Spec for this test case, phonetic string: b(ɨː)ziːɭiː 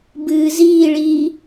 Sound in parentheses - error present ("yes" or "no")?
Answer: no